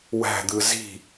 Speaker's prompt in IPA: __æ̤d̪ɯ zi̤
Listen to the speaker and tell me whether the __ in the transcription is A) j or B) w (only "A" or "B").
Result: B